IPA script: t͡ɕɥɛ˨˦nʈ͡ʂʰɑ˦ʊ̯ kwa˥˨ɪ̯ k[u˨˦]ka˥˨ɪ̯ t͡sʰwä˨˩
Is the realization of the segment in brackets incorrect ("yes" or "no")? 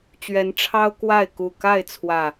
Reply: yes